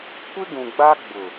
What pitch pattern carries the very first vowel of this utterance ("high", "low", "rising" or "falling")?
high